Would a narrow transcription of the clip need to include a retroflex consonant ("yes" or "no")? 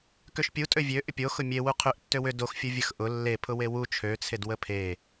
no